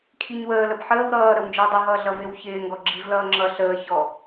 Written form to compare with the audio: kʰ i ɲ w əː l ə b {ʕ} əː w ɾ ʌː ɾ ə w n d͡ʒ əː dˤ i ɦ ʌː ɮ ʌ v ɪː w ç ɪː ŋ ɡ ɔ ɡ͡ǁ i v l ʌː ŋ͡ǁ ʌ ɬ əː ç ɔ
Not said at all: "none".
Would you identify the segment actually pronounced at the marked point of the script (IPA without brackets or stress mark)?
ħ